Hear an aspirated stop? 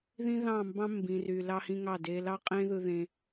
no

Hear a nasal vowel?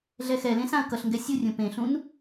yes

